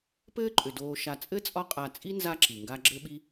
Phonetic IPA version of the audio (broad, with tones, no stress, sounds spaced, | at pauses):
p ɘː˥ ǃʼ ʏ˩ d oː˨ ʃ a˨ t͡sʼ ɘ˥ t͡sʼ ɒ˦ qʼ a˨ t͡sʼ i˥ n z a˦ ǁ i˩ ŋ ɡ a˦ ɡ͡ǁ ɘ˥ ɓ i˥